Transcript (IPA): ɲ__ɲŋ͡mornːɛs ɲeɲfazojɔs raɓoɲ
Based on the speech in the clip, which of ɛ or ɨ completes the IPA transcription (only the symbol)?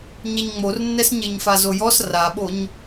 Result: ɛ